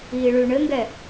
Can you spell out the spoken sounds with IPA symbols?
iː ɭ ʉ ɳ ɘ ŋ ɡ ɛ

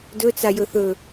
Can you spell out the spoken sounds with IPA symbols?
d ɵ t͡s a j ɵ θ ɵ

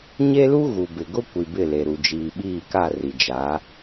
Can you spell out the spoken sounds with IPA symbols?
ɲ e˦ l u˦ ɣ u˨ b ɪ˨ ɡ ʊ˦ kʷ i˨ b ɪ˦˨ l e˨ ɾ u˨ d͡ʒ iː˨ ɓ iː˦˨ k a˦˨ r i˨ d͡ʒ a˨˦

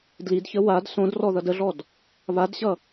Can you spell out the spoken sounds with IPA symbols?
d l i d ç ə w a d s õ d r ɔ ð ʌ d ə ɮ ɔ d | β a d ɕ ʌ

